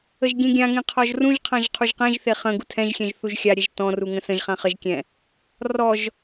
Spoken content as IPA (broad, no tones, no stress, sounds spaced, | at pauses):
ə ʒ ɡʲ ẽ ɡʲ ã ŋ ẽ qʰ ɔ ʒ r ũ ʒ qʰ ã ʒ qʰ u ʒ q ɛ̃ ʒ θ e χ ə̃ ɡ u tʰ ɛ̃ ʒ xʲ ɛ̃ ʒ θ u ʒ xʲ a ɾʲ ɛ ʒ t ɔ̃ r u ŋ ə̃ s ə̃ ʒ χ ã χ ə ʒ kʲ ɛ̃ | r ɔ ʒ